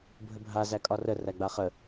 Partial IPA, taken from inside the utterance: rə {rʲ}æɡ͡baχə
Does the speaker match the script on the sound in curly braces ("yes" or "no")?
no